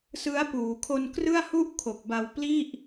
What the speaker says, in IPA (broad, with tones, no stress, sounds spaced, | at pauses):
s ɯ˦˥ a̯ p uː˩˦ kʰ o˧ n k r ɯ˥˩ a̯ h u˥˩ ʔ kʰ o˨˩ k̚ b a˧ w p l i˥˩ ʔ